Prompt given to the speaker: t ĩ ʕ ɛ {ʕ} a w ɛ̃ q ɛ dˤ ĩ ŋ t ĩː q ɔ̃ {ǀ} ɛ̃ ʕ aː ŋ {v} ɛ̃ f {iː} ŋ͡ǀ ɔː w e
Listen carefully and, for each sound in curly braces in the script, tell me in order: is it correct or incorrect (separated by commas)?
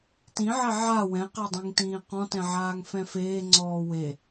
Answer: correct, incorrect, incorrect, incorrect